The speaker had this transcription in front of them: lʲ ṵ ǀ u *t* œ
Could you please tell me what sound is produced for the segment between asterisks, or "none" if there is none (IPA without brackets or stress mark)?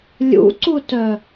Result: t